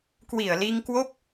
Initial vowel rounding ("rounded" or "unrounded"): unrounded